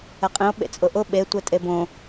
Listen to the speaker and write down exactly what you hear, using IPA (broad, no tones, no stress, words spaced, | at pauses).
ɛqʼĩo̯ ɓḛt͡sʼʊʔʊ ɓetʷɛ tʼebõ